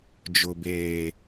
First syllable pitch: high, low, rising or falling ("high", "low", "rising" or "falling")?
low